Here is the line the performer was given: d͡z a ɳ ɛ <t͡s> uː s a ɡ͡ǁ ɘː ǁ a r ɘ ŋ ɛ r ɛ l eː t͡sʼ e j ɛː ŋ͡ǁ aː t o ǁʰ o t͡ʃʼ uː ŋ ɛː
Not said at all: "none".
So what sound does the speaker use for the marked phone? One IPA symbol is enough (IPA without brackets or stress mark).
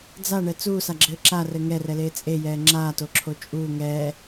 t͡s